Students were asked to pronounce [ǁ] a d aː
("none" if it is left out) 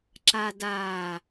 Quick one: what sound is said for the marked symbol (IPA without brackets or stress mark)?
ǁ